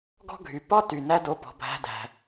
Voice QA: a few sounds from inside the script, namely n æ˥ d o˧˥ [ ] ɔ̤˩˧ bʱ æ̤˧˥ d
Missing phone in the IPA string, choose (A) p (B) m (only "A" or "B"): A